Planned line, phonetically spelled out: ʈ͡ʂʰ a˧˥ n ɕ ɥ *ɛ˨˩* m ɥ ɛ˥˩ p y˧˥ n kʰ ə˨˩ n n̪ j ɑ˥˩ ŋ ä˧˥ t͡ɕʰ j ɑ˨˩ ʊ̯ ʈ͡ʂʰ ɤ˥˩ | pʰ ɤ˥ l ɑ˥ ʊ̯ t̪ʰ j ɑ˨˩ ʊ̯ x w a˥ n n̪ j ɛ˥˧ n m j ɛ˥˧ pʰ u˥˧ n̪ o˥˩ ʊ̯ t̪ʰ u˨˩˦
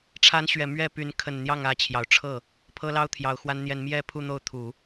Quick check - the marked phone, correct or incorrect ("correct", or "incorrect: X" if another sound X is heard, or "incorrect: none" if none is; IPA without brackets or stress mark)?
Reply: correct